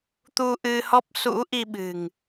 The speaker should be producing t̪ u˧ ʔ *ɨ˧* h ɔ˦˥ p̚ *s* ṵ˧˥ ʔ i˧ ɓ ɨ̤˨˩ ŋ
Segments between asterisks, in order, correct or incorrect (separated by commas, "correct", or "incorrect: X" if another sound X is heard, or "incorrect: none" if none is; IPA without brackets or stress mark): correct, correct